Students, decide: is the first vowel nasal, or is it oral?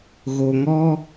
oral